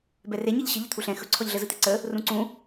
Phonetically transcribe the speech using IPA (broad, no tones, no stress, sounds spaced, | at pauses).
b ɛ r e ɲ ɯ ʎ ɕ ə ʎ ə t̪ʰ u ɬ ɛ̃ x ɵ ǀʰ ɔ ʎ ɮ ə z ɯ t̪ e ǀ ə | r ũ ǀ ũ